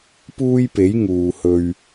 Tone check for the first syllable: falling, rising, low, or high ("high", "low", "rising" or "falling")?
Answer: high